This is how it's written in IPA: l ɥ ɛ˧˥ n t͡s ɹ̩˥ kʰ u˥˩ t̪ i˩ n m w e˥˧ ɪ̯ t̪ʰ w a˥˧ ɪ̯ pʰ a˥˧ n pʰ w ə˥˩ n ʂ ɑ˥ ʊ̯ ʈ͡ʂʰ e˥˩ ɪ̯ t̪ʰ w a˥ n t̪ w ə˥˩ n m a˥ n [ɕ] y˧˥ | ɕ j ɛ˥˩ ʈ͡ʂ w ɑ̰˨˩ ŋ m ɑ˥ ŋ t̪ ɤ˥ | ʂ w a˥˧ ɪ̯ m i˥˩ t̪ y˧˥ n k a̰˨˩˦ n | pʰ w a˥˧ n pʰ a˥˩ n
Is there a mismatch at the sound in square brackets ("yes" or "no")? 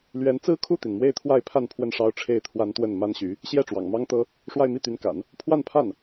no